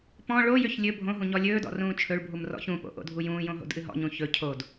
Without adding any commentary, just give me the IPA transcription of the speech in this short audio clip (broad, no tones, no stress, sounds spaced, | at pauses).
p ɔ̃ ɭ o j ʏ ç lʲ ɵ bʱ õ ɦ ũ ɲ ɔ lʲ ɵː d ɔ̰ r ũː t͡ʃʰ ɵ ɭ bʱ u m r ɔ̰ ç ũ p o̰ ʔ o̰ dʱ u j ũː j õ ɦ o̰ d ʔ ɨ ɦ ɔ̰ ɲ ũ ç ɵ cʰ o d